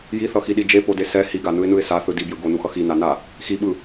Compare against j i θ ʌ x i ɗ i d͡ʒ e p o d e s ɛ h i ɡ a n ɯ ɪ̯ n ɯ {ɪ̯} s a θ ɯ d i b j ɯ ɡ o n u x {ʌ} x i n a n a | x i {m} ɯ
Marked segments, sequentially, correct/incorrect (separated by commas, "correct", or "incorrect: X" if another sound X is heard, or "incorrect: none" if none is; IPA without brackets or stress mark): correct, correct, incorrect: ɓ